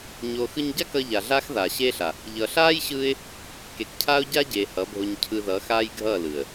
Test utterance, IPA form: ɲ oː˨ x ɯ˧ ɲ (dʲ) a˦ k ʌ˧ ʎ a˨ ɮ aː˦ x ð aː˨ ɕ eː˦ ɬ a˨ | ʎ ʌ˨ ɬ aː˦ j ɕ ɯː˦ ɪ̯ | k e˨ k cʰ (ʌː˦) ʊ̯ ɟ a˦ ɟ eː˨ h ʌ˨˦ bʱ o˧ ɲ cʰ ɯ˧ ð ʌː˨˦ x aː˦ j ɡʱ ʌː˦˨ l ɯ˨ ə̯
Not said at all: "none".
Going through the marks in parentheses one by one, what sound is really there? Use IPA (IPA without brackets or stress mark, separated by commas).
ɟ, aː˦